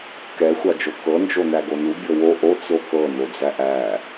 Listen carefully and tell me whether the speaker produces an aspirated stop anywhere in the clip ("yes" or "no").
no